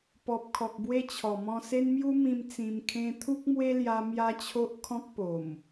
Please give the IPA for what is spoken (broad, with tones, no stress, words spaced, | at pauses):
pɔ˨p̚kʰɔ˨k̚bwe˦ t͡ɕʰɔ˨˩mɔ̃˧se˦n mju˦mĩ˧m t͡sĩ˧mkʰẽ˦ t̪ʰu˦k̚mwe˦ lja˦ mja˦t͡ɕʰo˦ʔ kʰɔ̃˦k̚po˨˩m